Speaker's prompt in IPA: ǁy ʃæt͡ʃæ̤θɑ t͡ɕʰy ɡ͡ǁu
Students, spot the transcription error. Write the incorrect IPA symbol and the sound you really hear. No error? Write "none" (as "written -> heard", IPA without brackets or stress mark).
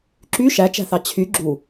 none